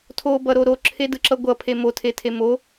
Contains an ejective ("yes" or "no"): no